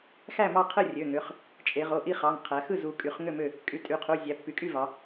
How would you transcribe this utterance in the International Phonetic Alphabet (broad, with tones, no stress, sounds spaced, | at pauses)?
x æ˥˨ m ɑ˥˨ qʰ ɯ˥˨ rʲ ø˩˧˩ ŋ ø˩˧˩ χ | t͡ʃʼ e˩˧ ʁ o˩˧˩ ʔ i˥˨ χ ɑ˩˧˩ ŋ qʰ æ˩˧ x ɯ˥˨ z u˩˧ kʼ y˩˧˩ χ ŋ ø˥˨ m ø˥˨ | kʼ y˩˧˩ tʼ y˩˧ qʰ u˩˧˩ zʲ æ˩˧ pː y˩˧ kʼ y˥˨ v ɑ˩˧